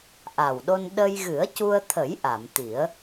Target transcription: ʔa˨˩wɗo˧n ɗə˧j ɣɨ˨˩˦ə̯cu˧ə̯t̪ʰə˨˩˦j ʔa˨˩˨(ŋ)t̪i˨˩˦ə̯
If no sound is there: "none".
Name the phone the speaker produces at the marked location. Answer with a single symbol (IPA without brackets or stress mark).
m